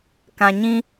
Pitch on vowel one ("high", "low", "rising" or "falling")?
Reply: low